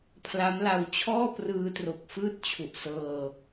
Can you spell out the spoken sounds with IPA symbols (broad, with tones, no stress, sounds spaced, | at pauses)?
pʰ l a˦˥ m l a˧ w t͡ɕʰ ɔː˥˩ p r ɯː˧ t r o˨˩ k̚ f ɯː˥˩ t̚ t͡ɕʰ u˨˩ ʔ s ɤː˧